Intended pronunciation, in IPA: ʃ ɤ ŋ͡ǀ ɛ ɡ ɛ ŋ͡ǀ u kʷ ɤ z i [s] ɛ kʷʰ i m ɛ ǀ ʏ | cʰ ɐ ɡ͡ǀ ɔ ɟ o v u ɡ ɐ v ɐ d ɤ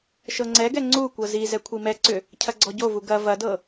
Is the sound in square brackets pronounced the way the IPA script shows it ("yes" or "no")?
no